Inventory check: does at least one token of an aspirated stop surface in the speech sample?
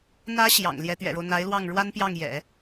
no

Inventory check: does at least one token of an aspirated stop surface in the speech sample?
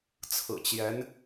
yes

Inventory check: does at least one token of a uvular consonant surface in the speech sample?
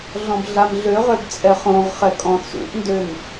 yes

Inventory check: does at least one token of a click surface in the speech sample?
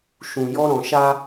no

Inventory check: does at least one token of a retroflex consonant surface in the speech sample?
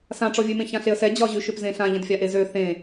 yes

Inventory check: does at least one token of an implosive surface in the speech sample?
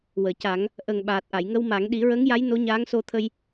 yes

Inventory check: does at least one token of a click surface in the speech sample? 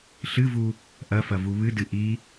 no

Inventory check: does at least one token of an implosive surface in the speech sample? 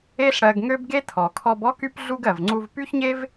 no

